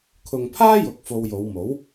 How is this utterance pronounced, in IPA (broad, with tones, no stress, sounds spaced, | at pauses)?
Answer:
kʰ ʊ˨ ŋ pʰ aː˥ j ʊ˨˥ k̚ f o˧ w j o˨˧ w m o˨˥ w